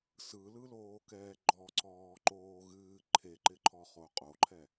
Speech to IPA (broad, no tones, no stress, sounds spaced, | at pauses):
s ɯ l ɯ l oː k ɛː ɡ͡ǃ ɔ ǀ ɔː ǃ oː ɣ ɨː ǃʰ e ǃ ɪ ǃʰ ɔ χ o qʼ o ǃʰ ɛ